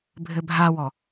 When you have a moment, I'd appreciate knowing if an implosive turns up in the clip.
no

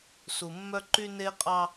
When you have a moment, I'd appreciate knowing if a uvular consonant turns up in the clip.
yes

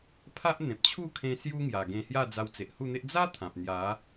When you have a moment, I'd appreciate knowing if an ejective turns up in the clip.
no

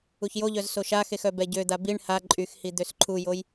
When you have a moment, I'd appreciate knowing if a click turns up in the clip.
yes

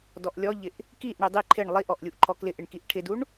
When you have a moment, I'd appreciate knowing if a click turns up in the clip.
yes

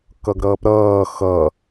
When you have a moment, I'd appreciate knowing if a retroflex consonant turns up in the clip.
no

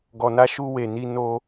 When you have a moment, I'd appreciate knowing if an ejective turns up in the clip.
no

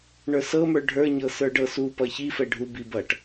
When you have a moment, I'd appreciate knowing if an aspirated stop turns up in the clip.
no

